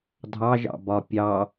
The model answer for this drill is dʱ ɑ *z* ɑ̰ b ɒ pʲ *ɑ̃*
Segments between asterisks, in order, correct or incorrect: incorrect, incorrect

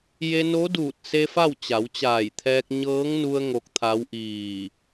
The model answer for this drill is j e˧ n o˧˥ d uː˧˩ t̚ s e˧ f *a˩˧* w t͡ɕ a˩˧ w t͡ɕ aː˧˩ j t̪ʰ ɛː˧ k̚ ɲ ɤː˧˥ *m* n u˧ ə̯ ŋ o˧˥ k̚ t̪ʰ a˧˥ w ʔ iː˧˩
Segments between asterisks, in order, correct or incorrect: incorrect, incorrect

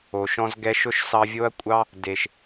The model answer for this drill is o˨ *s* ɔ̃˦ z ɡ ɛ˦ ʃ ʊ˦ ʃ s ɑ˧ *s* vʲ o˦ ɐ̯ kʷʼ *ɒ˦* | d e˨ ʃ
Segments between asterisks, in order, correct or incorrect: incorrect, incorrect, incorrect

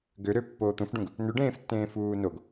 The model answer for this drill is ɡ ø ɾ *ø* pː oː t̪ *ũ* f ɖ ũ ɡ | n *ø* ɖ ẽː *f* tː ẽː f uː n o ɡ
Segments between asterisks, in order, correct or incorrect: correct, correct, correct, correct

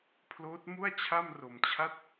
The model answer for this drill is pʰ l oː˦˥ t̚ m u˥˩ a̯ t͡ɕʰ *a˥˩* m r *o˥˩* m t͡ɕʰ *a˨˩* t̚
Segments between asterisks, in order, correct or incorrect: correct, incorrect, incorrect

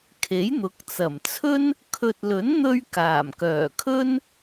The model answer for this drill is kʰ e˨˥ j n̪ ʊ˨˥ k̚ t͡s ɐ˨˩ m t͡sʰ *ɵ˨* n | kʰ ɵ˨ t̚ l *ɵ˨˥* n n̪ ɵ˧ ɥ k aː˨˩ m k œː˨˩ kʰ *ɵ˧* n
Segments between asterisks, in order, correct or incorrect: incorrect, correct, incorrect

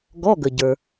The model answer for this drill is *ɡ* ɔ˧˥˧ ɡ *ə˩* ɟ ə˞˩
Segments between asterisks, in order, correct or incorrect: correct, correct

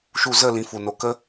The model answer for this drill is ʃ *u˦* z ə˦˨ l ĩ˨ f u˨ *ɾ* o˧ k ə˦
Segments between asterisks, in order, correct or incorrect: correct, incorrect

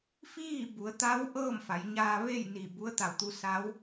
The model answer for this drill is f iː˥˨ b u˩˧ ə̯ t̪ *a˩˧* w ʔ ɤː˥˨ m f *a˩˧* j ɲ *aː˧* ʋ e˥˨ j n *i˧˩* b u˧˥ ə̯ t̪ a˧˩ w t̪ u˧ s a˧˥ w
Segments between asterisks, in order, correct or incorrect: incorrect, correct, correct, correct

